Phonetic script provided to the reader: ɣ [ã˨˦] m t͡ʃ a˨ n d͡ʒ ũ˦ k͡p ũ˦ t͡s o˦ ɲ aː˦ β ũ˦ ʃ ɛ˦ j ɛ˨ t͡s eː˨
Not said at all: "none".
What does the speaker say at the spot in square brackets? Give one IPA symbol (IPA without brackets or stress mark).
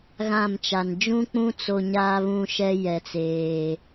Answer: ã˦˨